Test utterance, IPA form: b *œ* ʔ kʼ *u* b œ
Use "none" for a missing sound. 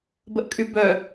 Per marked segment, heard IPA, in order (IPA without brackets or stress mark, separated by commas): ə, y